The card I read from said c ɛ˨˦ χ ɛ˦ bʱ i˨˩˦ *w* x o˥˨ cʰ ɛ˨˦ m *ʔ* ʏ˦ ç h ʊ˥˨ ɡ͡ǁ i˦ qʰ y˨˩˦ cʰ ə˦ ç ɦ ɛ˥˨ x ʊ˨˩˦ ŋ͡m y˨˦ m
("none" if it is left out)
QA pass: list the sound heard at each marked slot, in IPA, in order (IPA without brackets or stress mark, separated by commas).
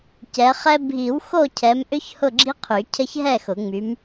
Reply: w, ʔ